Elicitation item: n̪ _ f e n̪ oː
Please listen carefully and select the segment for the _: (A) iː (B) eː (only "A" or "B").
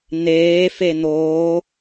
B